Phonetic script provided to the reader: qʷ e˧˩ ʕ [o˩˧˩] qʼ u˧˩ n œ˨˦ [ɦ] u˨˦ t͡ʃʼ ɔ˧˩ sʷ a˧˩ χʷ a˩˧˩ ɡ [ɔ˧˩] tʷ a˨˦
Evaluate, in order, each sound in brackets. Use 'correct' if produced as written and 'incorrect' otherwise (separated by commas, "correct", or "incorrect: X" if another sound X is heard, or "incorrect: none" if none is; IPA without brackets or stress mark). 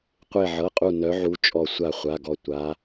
incorrect: ɤ˩˧˩, incorrect: ʕ, correct